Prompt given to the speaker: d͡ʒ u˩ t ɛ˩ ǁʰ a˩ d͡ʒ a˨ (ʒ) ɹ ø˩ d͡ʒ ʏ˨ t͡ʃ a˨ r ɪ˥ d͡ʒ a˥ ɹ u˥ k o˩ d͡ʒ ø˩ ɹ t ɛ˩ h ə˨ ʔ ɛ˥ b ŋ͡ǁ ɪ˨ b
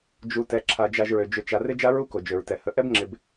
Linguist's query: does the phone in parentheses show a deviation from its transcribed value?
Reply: no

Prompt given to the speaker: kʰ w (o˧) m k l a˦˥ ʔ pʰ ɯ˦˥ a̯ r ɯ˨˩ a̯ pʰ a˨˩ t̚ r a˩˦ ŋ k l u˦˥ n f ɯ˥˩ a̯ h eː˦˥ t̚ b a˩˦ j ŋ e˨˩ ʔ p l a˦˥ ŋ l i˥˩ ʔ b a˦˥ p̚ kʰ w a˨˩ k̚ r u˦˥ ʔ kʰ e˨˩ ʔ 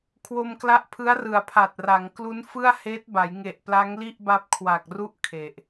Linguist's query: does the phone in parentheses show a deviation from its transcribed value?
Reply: no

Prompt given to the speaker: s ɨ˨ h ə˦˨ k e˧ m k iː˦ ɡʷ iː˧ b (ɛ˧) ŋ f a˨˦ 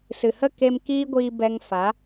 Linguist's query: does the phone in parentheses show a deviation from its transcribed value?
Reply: no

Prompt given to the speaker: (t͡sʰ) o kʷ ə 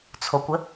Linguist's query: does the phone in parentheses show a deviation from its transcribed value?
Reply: no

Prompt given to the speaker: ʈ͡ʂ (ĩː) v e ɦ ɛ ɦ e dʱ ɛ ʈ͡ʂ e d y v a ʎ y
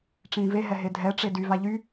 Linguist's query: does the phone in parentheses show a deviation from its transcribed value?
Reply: no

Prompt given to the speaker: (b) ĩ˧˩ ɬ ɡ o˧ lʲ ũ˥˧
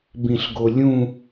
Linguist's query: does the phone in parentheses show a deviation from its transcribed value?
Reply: no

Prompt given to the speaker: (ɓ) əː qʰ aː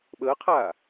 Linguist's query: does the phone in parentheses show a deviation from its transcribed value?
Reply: no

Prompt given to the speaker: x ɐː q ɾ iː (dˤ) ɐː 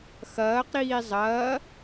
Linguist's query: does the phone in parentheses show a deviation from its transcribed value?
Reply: yes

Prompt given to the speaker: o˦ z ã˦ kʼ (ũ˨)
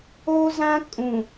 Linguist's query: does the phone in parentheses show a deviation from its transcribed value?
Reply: no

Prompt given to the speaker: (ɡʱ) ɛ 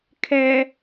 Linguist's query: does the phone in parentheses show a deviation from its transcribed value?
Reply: yes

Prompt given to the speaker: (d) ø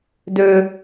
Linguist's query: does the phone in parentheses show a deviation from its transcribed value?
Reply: no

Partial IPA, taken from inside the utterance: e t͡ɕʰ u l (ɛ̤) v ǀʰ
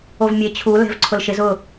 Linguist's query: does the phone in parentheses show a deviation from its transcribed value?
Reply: no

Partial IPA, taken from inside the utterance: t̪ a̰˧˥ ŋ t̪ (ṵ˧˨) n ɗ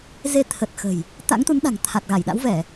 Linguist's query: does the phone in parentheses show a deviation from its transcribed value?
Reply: yes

